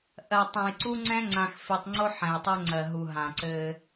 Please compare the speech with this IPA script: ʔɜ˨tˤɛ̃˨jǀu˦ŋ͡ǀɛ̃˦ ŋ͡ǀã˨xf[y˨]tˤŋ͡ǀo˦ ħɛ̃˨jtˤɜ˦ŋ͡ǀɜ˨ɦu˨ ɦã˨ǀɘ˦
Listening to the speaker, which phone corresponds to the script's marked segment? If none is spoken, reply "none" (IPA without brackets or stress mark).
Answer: i˨